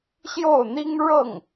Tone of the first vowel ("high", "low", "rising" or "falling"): falling